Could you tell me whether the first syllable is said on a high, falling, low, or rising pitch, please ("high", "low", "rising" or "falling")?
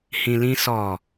low